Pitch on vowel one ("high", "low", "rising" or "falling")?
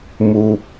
low